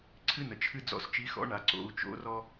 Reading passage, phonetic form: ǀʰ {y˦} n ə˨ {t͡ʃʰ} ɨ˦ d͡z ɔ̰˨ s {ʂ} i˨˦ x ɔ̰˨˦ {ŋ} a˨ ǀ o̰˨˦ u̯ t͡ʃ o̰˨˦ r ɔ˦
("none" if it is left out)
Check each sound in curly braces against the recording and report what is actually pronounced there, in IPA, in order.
ɨ˦, t͡ʃʰ, t͡ʃ, ɳ

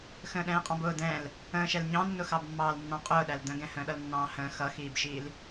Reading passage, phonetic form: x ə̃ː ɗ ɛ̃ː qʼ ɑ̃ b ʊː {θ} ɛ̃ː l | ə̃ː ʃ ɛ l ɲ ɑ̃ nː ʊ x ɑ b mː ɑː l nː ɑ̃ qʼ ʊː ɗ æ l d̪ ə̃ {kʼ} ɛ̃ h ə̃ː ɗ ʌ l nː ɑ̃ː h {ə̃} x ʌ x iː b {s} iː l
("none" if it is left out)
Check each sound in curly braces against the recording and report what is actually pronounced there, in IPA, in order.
d̪, ɡ, ə̃ː, ʃ

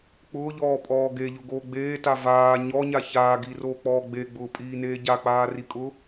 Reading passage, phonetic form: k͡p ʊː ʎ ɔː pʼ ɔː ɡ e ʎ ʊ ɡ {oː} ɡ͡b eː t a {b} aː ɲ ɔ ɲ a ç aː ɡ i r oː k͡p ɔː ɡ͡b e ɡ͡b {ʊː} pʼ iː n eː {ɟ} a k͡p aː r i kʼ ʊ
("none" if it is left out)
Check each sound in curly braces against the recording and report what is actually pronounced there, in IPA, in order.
oː, v, ʊː, ɟ

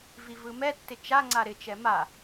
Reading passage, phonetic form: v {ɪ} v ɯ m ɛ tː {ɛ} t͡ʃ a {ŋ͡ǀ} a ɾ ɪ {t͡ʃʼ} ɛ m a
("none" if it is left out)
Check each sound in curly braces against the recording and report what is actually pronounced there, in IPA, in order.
i, ɪ, ŋ͡ǀ, t͡ʃ

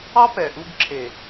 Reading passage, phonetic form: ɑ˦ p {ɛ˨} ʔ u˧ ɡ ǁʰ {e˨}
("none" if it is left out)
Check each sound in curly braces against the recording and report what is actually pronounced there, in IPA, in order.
ɛ˨, e˨

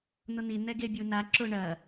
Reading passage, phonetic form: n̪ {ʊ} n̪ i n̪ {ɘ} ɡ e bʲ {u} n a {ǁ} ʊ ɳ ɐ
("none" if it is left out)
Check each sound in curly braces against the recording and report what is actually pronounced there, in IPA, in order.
ʊ, ɛ, u, ǁ

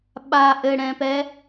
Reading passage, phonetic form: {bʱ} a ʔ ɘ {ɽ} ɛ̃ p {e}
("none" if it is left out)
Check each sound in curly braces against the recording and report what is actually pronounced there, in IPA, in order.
ɓ, ɽ, ɛ

